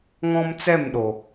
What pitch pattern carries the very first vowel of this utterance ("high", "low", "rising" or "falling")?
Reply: high